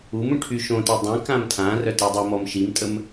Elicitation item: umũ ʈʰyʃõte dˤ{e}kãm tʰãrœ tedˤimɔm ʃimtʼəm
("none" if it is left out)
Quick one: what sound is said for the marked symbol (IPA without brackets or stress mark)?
ẽ